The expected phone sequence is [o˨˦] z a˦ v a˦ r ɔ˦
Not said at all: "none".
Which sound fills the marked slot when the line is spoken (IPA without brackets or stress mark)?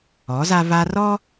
ɔ˨˦